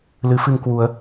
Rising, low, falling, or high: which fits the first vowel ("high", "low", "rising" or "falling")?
rising